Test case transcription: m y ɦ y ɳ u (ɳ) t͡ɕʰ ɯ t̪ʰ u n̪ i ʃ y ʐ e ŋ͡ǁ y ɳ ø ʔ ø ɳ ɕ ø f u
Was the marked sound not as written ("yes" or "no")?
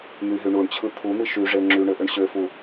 no